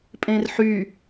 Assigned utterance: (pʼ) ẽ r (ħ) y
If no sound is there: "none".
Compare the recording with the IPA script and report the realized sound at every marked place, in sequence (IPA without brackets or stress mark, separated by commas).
pʼ, ħ